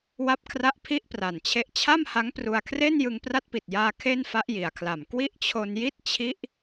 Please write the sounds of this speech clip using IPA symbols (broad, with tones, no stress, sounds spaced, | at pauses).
w a˦˥ p̚ kʰ r a˦˥ ʔ pʰ i˥˩ ʔ p r a˨˩ n t͡ɕʰ e˦˥ ʔ t͡ɕʰ a˥˩ m h a˦˥ ŋ p r u˧ a̯ kʰ r e˥˩ n j ɯ˧ ŋ p r a˦˥ t̚ p i˨˩ t̚ j aː˧ kʰ e˥˩ n f a˦˥ ʔ j i˨˩ a̯ kʰ l a˨˩ m k w i˥˩ ʔ t͡ɕʰ o˧ n j i˥˩ t̚ t͡ɕʰ i˦˥ ʔ